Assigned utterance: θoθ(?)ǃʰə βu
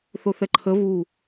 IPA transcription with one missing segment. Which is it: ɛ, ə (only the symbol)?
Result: ɛ